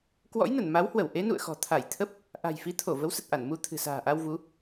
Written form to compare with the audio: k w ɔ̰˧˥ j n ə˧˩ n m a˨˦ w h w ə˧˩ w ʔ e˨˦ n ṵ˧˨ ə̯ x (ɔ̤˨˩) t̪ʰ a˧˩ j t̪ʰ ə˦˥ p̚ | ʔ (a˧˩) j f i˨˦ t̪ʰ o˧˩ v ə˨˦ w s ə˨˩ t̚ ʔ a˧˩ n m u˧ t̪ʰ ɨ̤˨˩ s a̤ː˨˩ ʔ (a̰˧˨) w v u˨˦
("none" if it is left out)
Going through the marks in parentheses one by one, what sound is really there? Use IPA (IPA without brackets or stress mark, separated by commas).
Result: ɔ̤˨˩, a̤˨˩, a˧